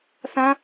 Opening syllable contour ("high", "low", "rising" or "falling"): high